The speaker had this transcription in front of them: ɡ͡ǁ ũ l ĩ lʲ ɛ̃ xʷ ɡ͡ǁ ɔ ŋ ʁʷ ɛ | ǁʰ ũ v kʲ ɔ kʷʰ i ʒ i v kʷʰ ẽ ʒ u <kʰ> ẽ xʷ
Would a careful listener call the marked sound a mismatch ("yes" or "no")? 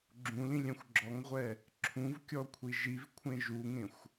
yes